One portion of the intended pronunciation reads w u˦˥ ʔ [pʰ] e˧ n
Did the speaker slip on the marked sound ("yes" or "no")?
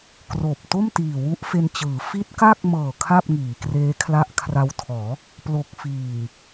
yes